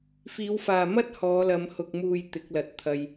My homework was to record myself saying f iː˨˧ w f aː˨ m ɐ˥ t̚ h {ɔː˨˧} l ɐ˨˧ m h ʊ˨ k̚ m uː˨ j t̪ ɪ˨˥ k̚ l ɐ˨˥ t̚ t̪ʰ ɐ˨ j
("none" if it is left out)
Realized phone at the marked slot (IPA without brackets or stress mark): ɔː˨˧